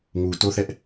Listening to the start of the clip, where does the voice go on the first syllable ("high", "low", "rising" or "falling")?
low